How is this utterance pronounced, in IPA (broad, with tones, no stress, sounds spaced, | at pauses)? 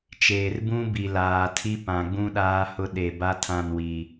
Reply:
t͡ʃ eː˨ r b ũ˦ b i˨ l aː˨ tʰ i˦ p ã˨ ɡ͡b ũ˦ ɗ aː˦ h ʊ˦ ɗ e˨ b a˦ tʰ ã˦˨ n w i˨